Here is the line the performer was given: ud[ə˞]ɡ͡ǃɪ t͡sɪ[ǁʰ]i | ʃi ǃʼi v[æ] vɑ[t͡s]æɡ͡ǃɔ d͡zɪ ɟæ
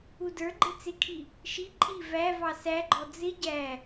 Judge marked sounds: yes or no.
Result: yes, no, yes, no

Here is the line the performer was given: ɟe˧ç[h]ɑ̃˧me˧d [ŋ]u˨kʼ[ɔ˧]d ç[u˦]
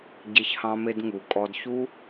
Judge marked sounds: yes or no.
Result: yes, yes, yes, yes

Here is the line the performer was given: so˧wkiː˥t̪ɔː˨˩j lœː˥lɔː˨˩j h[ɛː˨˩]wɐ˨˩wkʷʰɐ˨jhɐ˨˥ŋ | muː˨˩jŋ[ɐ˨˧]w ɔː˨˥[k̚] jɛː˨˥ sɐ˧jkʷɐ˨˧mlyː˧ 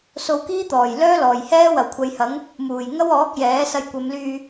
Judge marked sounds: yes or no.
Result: no, no, yes

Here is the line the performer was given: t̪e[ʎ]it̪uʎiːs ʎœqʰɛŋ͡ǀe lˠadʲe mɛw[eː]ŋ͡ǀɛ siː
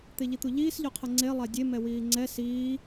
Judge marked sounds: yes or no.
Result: yes, no

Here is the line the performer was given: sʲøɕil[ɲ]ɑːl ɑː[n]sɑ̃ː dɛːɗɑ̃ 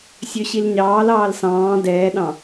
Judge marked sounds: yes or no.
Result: yes, no

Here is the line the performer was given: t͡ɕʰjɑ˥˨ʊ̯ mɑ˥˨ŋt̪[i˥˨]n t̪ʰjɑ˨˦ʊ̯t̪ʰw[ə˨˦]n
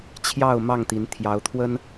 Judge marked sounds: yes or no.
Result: no, no

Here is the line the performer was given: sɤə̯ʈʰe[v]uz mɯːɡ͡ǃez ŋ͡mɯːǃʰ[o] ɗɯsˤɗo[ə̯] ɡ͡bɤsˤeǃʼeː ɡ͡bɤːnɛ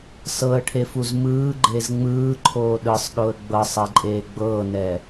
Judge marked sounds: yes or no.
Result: no, no, yes

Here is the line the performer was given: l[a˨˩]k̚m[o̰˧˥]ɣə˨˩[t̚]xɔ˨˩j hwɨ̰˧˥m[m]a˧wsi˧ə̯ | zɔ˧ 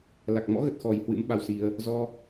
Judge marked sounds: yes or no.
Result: yes, no, yes, no

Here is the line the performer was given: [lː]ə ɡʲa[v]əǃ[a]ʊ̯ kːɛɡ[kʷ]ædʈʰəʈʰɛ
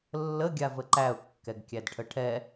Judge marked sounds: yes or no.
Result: yes, yes, no, no

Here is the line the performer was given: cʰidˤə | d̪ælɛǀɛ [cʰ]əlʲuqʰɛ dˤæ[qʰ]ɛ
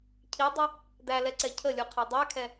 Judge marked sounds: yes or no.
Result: yes, no

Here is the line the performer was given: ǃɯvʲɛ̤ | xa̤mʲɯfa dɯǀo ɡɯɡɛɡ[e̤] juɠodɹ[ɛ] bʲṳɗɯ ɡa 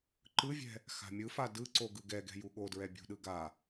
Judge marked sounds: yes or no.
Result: no, yes

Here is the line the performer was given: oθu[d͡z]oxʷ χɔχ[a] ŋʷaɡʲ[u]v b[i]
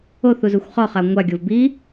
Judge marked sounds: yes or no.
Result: no, yes, no, yes

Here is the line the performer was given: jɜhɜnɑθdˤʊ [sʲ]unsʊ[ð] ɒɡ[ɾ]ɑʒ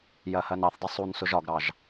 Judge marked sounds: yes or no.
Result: no, no, yes

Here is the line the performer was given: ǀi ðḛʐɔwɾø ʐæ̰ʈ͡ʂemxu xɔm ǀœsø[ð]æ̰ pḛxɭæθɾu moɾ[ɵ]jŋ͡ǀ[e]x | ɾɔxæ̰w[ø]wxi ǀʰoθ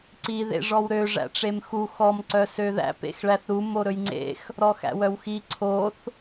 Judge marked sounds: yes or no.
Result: yes, yes, no, no

